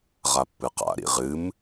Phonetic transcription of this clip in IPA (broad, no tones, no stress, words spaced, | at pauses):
ʁapːɨqa̰ ɾḭʁɨm